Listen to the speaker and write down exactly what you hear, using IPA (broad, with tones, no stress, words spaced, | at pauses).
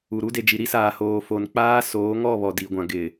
u˨ɾu˦de˨d͡ʒi˨ ɾi˦saː˨ hoː˨fo˨n k͡paː˦soː˨˦ ŋɔ˦˨ βɔ˨di˨ɡʷã˨ ɡɪ˨